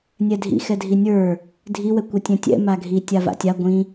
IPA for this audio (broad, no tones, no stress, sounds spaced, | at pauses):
nʲ ɛ dʱ ḭ x ɛ dʱ i nʲ ə˞ | dʱ i w ɛ kʷ ɛ tʲ ɛ̃ tʲ ɛ̰ m a ɡʱ i tʲ a v a̰ tʲ a ɡʷ ĩ